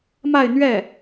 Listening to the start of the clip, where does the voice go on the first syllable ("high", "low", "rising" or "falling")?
falling